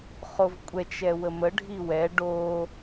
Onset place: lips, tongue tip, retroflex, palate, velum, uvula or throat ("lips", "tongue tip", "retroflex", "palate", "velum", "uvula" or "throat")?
uvula